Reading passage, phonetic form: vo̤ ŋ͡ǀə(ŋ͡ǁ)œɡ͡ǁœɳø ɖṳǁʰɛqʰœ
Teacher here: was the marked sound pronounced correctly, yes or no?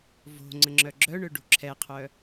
yes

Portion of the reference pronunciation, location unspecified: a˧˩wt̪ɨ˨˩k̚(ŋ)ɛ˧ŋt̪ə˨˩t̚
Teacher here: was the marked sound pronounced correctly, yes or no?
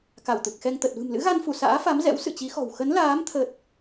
no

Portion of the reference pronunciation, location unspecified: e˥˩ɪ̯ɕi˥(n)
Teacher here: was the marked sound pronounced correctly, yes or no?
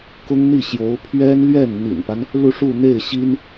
yes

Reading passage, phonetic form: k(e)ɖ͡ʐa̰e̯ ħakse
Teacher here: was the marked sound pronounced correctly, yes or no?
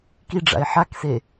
no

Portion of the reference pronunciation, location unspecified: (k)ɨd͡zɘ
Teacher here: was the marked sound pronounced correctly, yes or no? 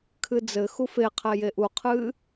no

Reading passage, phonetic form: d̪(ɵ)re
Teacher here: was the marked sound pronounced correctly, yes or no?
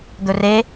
yes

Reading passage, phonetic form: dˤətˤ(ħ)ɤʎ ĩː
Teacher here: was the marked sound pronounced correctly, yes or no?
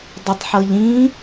yes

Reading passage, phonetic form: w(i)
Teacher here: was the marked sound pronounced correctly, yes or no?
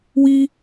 yes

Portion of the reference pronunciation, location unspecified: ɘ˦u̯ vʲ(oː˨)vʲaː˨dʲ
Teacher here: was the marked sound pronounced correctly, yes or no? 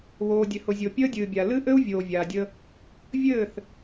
yes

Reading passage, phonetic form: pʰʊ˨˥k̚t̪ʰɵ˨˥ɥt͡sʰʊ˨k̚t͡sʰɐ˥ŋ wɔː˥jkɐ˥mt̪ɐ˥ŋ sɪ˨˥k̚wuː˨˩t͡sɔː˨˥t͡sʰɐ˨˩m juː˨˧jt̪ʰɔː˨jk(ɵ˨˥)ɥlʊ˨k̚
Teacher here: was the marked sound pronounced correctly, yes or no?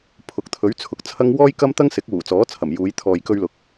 no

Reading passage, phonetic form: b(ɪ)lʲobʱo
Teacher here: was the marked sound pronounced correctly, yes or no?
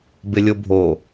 yes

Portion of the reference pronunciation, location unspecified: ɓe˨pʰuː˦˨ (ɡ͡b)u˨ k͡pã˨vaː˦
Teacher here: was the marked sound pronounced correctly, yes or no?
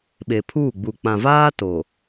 yes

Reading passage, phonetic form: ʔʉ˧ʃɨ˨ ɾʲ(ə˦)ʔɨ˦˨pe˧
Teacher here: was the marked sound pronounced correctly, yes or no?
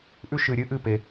no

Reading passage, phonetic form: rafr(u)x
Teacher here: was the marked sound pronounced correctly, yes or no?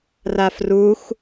yes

